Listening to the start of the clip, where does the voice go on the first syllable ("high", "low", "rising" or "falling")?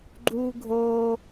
high